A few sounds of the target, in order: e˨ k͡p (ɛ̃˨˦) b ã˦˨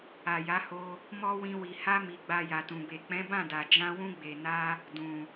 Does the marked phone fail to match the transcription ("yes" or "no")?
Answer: no